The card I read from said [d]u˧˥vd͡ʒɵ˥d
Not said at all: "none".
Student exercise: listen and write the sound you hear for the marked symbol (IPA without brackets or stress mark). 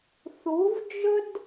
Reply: θ